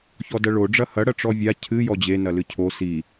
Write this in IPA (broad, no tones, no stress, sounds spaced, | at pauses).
ç ɔ d ɐ ɭ o ɖ͡ʐ ɐ h ɐ ɽ ɐ ʈ͡ʂ ɔ vʲ a cʰ ɨ j ɔ d͡ʑ e n ɐ l ɨ cʰ o s i